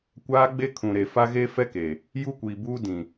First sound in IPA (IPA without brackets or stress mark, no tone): kʷ